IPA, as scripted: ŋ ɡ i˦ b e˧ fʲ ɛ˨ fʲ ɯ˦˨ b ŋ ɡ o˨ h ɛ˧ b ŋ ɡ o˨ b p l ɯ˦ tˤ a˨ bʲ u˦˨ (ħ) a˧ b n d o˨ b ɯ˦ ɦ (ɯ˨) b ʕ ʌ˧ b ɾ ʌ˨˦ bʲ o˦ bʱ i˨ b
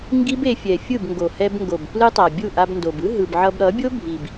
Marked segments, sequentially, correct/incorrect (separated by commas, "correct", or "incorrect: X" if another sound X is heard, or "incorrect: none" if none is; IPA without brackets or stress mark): incorrect: ʔ, correct